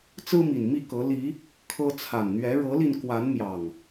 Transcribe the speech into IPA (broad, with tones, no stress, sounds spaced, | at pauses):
t͡s ɹ̩˦ m i˨˩ n m i˥˨ k ɤ˨˦ l i˨˦ | kʰ ɤ˦ t͡sʰ a˨˩ n n̪ ɥ ɛ˨˦ ɻ ɤ˨˦ l i˧ n k w a˨˦ n m j ɑ˨˩ ŋ